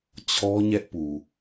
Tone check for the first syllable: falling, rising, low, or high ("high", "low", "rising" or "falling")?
high